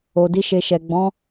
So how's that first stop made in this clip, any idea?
plain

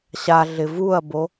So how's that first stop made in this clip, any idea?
plain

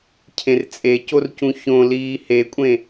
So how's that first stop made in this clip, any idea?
aspirated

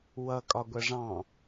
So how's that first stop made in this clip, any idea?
ejective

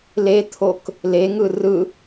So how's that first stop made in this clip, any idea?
aspirated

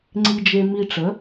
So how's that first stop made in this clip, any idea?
click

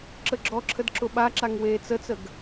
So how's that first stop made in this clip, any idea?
click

